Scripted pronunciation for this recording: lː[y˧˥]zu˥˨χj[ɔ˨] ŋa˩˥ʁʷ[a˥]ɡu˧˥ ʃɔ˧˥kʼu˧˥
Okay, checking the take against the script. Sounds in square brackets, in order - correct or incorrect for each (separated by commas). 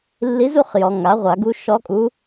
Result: incorrect, correct, incorrect